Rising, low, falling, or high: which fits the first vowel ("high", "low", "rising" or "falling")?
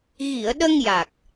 low